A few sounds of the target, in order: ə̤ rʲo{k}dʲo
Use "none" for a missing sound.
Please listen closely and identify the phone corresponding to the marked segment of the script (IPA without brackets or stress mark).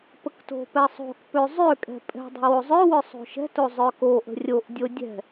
ʔ